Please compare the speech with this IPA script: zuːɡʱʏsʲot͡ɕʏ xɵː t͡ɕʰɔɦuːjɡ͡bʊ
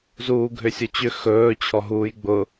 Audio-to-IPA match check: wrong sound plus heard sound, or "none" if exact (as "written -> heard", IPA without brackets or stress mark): none